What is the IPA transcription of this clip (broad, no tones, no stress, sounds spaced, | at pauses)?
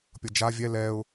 pʲ ʌ d͡ʒ a vʲ ɛ l ɛ ʊ̯